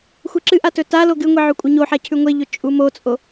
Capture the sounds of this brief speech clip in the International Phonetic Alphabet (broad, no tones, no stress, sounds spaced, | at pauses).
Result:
xʷ e ǁ ɨ ʔ a t ɵ t a l o ɡ ɨ ŋʷ i ʕ ʉ kʷʼ ɐ ɲ o ħ a cʰ ʉ ŋʷ e ʎ ɵ t͡ʃʼ u m o t͡sʼ o